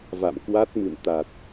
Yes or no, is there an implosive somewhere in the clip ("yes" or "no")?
no